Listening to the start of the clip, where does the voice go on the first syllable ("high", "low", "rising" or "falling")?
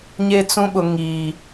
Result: high